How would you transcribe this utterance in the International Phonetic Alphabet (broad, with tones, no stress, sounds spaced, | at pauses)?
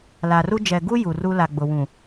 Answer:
l a˨ r u˦ d͡ʒ ɛ˨ ɡ u˦ j u˨ r u˦ l a˨ ɡ͡b ʊ˨ w ũ˨